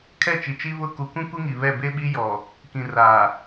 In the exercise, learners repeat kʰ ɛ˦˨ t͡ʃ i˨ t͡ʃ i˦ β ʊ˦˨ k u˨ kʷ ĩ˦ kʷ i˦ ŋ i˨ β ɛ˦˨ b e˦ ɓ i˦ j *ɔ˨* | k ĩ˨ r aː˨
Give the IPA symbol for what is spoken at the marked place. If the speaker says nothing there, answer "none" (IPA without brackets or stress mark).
ɔ˨